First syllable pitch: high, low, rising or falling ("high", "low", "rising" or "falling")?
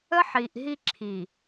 high